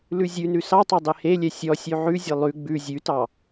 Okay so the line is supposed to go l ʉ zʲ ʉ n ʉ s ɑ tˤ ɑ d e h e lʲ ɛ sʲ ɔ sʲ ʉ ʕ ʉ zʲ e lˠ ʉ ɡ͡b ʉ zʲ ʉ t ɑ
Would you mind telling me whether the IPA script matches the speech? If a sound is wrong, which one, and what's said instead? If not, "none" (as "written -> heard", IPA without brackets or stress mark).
d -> dˤ